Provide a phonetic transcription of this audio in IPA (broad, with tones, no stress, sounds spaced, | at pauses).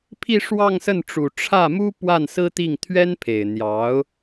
pʰ i˥˧ ʂ w ɑ˥˧ ŋ s ə˥˩ n ʈ͡ʂ u˨˩ ʈ͡ʂʰ ä˥˩ m u˥ p w a˥˩ n s ɹ̩˥ t̪ i˥˩ ŋ t̪ʰ ɥ ɛ˥ n pʰ e˨˩ ɪ̯ n̪ j ɑ˧˥ ʊ̯